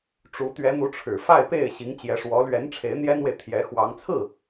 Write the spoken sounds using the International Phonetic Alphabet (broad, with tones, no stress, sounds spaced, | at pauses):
ʈ͡ʂ u˧˥ t̪ ɥ ɛ˧˥ n̪ u˧˥ ʈ͡ʂʰ ɻ̩˨˩ f a˥˧ ɪ̯ p e˥˩ ɪ̯ ɕ i˧˥ ŋ t͡ɕ j ɛ˧˥ ʂ w ɔ˧˥ l ɥ ɛ˧˥ n ʈ͡ʂʰ e˧˥ ɪ̯ n̪ j ɛ˥ n w e˨ ɪ̯ t̪ʰ j ɛ˧˥ x w ɑ˧˥ ŋ t͡sʰ ɹ̩˥˩